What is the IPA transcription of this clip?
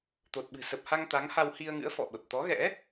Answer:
t̪ o˨˩ t̚ ɓ ɨ̤˨˩ s ə˨˩ p̚ h a˧ ŋ t̪ a˨˦ ŋ h a˧ w h i˧ ə̯ ŋ ɨ̰˧˥ ə̯ f ɔ̰˧˨ ɓ ə˨˩ p̚ t̪ ɔ˨˦ ɣ ɛ̰˧˥

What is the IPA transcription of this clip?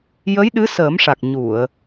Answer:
j ə˧˥ j ɗ ɨ˧˥ s əː˨˩˦ m ʂ a˨˩ k̚ ɲ u˨˩˨ ə̯

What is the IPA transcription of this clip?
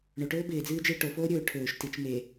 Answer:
ɳ o ʈ ɵː b ɪː d͡z ɨː d͡ʒ ɪː ʈ o f oː ɾʲ ɵː ʈʰ ɵː ʃ t i t͡ʃ m e

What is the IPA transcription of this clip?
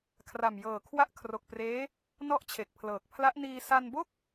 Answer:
kʰ r a˨˩ m j ɤː˨˩ kʰ w a˦˥ ʔ kʰ r o˨˩ k̚ p r eː˦˥ | n ɔ˥˩ ʔ t͡ɕʰ e˨˩ k̚ pʰ l ɤː˨˩ k̚ pʰ l a˦˥ ʔ n iː˧ s a˧ n b o˥˩ k̚

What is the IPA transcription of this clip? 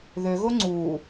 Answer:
ð ø ɣ o ŋ͡ǀ u

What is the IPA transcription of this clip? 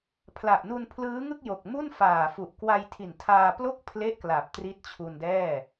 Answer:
pʰ l a˨˩ ʔ n u˧ n pʰ l ɯː˦˥ ŋ ɯ˥˩ k̚ j o˨˩ k̚ m u˥˩ n f aː˨˩ f u˨˩ ʔ k w a˧ j tʰ i˨˩ n tʰ aː˧ p l o˥˩ k̚ pʰ l e˥˩ ʔ k l a˨˩ p̚ t r i˦˥ t̚ t͡ɕʰ u˧ n d ɛː˥˩

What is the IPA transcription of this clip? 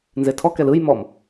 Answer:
n z e tʰ ɔ k ɛ l ɯ j m ɔ m

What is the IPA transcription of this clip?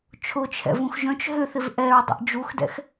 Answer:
t͡ʃʰ ʊ t͡ʃʰ ɛ̰ v ũ x ʒ œ̃ t͡ʃ ɦ ʏ θ ɪ v ʔ ɛ ɹ dˤ ə̰ ʔ d͡ʒ u x d ɛ̰ x

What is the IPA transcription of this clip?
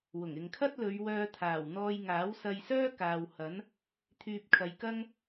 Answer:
w ʊ˨˩ ŋ ɪ˨ ŋ kʰ ɐ˥ t̚ l ɵ˨˧ ɥ w œː˧ t̪ʰ aː˨˩ w n̪ ɔː˧ j ŋ aː˨˥ w s ɐ˧ j s œː˥ k aː˨ w h ɐ˨˥ n | t̪ʰ yː˧ p̚ kʰ ɐ˨˧ j k ɐ˥ ŋ

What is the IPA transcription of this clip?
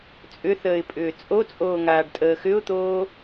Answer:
t͡sʼ ʏ θ əː ɪ̯ pʼ ʏː t͡sʼ o t͡sʼ oː ŋ aː ɖ tʼ əː x ʏ ʊ̯ t̪ oː

